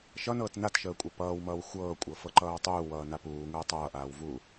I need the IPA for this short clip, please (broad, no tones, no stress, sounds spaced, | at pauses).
ʃ ʌ n ɤː t n a t ʃ əː kʷʼ ʌ p ʌː w m ʌː w xʷ ɤː kʷʼ ɤ f ɤ ǃ ʌː w tˤ uː w ʌː n a p uː ŋ əː tˤ ʌː ʔ aː w v u